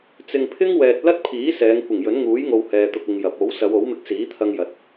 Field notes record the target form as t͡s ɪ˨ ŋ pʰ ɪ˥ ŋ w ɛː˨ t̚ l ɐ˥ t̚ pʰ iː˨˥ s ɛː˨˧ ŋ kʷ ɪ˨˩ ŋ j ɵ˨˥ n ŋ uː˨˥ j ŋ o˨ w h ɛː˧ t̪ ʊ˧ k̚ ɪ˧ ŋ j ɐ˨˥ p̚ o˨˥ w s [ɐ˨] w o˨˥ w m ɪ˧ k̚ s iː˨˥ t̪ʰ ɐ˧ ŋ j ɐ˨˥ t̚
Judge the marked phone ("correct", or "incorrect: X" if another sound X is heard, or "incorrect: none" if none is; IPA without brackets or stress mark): incorrect: ɐ˨˧